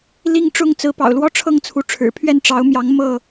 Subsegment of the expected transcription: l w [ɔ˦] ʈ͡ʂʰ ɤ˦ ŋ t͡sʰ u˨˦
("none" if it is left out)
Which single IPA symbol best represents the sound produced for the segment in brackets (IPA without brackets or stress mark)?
ɔ˦